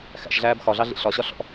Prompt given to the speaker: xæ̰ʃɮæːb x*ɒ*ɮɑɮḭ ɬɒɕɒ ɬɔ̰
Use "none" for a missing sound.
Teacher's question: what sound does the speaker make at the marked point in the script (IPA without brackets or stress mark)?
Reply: ɒ